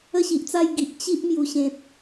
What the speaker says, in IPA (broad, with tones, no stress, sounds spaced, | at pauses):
ə˥˧ ɕ i˨ ʔ t͡s a˥˧ j ɡ i˨ ʔ t͡ɕ i˦ ʔ m j u˨˩ ɕ ẽ˨ t̚